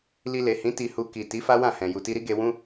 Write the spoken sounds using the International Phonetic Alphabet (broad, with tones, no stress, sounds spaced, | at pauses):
l i˧ l e˨ h ĩ˨˦ t i˧ h u˧ k i˨ t i˨˦ f a˦ w ã˦˨ h ɛ̃˨ j u˨ t i˧ ɾ i˦ ɡ e˧ w ũ˦